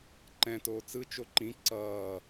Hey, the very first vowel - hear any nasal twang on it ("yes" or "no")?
yes